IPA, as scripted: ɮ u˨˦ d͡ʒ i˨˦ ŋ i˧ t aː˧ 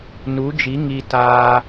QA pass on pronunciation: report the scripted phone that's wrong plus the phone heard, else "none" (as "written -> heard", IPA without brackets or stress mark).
ɮ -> n